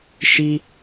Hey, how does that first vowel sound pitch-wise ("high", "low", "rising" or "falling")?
high